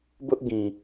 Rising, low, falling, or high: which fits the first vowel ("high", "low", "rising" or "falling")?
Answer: high